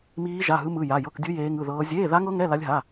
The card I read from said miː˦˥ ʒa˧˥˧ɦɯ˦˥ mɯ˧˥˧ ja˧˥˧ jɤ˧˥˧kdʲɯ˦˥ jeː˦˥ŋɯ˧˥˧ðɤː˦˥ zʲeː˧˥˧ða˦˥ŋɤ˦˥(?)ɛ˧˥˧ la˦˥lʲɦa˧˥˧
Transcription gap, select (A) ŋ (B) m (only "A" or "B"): A